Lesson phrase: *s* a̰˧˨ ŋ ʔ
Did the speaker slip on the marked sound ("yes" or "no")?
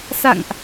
no